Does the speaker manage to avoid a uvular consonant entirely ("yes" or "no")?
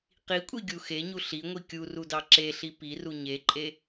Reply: no